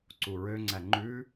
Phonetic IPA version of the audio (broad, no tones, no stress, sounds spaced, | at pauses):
ǀ u ɹ ø ŋ͡ǀ æ ŋ͡ǃ ʉ